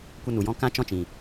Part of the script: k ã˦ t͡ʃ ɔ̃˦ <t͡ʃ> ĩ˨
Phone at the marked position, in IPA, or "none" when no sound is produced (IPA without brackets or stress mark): t͡ʃ